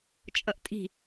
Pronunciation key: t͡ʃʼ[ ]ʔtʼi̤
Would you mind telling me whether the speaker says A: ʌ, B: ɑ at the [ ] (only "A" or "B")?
A